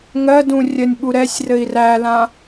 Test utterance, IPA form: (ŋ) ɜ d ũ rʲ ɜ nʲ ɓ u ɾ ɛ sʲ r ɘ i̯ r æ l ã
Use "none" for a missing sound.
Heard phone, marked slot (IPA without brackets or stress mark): ŋ